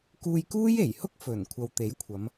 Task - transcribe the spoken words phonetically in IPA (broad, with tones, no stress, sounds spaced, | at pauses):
k uː˧ j k uː˥ j e˨˩ j h ʊ˥ k̚ f ɵ˨˩ n kʷʰ ɐ˨ w t̪ e˨˥ j kʷʰ ɐ˨˧ m